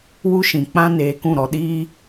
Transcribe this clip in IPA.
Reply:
w u˦ ʃ ĩ˨ k͡p ã˦ n eː˧ k ũ˦˨ ɾ ɔ˧ ɗ iː˧

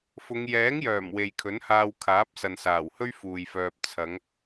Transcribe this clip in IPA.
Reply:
f ʊ˨˧ ŋ j ɛː˨˥ ŋ j œː˨˩ m w e˨ j kʰ ɵ˨˥ n h aː˧ w kʰ aː˨˥ p̚ s ɐ˨ n s aː˨˩ w h ɵ˥ ɥ f uː˨ j f œː˧ p̚ t͡sʰ ɐ˨˧ ŋ

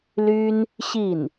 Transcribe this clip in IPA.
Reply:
l y˥ n | ɕ i˥˩ n

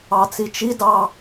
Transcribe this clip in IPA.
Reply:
ɑ t͡s i t͡ʃ i d ɑ

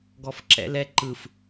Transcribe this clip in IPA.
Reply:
ɡ ɔ f ǁ ɛ̰ l ɛ ǃ ɯ f

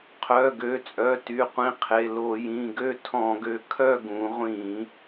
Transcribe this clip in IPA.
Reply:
qʰ œ˩˧˩ ɡ ø˩˧˩ t͡sʼ œ˩˧˩ t y˩˧˩ qʷ ĩ˨˥ qʰ e˩˧˩ l o˧˩˧ j ĩ˩˧˩ ɡ ø˥˧ tʰ ɔ̃˧˩˧ ɡ ø˨˥ kʰ œ˥˧ ɡ ũ˩˧ ʁʷ ĩ˧˩˧

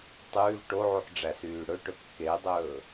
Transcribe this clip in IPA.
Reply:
tˤ ʉː v ʈ o ʕ u ħ ɖ͡ʐ æ s yː ɽ ɵ ʈ ɵ kː e dˤ ɵː

